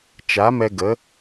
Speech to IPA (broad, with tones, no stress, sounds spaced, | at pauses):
t͡ʃ a˨˦ m ɛ˧ ɡ ə˨˦